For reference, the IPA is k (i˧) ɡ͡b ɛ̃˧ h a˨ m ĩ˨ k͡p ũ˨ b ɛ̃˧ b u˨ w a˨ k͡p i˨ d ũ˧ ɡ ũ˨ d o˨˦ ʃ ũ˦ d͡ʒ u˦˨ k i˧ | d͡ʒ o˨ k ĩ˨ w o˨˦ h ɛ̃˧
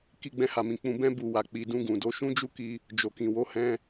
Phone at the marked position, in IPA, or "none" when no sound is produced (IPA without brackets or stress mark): i˧